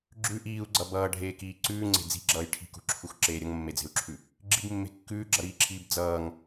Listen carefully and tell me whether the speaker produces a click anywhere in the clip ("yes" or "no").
yes